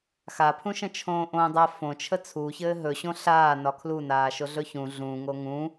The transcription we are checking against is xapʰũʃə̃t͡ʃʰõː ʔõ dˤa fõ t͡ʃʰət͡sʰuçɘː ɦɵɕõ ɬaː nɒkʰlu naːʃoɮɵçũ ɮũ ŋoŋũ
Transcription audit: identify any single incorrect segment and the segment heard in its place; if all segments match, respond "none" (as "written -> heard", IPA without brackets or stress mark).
none